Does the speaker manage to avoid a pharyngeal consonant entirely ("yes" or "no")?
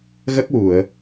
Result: yes